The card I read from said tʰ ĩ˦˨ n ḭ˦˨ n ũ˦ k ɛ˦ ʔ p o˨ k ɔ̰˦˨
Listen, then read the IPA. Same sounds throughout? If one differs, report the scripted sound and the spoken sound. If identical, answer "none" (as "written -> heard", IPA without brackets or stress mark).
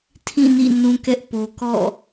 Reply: none